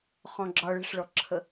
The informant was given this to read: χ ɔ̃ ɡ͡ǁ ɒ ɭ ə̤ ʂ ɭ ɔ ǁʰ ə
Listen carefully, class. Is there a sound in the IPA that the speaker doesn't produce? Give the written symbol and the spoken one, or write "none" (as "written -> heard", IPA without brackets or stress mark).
none